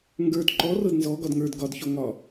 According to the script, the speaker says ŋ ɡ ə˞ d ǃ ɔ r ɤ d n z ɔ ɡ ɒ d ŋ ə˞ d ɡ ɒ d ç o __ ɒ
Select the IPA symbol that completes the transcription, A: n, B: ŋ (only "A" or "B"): B